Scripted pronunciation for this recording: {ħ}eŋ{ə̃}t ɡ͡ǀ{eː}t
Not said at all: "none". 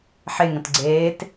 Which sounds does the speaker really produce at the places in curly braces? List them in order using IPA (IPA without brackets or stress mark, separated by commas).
ħ, ə̃, eː